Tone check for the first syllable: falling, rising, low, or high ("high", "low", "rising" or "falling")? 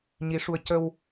rising